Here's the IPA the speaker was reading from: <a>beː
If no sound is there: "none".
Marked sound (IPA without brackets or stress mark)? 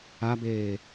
a